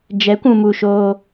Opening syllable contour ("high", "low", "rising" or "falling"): rising